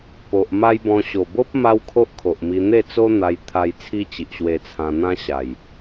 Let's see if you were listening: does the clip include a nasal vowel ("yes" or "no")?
yes